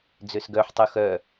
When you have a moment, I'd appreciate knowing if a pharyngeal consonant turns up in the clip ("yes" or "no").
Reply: yes